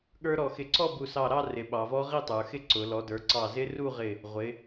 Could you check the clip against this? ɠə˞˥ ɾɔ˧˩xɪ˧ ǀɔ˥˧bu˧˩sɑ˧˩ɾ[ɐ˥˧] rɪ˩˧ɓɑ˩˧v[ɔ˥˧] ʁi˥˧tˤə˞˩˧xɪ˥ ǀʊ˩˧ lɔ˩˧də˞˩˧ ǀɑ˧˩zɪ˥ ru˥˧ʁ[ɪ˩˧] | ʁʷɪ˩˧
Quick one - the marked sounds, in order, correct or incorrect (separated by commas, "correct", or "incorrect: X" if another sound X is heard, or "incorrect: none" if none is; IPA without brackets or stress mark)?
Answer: incorrect: ɑ˥˧, incorrect: ɔ˥, incorrect: ɪ˧˩